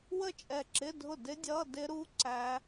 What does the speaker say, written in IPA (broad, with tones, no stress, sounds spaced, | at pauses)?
w ə˥˩ t͡ʃʼ ɛ˧˩ ǁ ɪ˧˥˧ dʱ ʊ˥˩ d ɪ˦˥ dʲ ʌ˧˥˧ d ɪ˦˥ ɾ u˧˥˧ ǀ æ˦˥